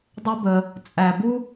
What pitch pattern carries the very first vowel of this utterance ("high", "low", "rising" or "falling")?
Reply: high